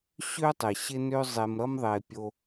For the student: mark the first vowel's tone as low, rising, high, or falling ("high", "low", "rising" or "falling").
high